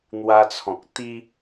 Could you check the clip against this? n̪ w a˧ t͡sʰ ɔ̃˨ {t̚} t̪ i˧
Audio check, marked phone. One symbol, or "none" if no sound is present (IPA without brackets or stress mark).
k̚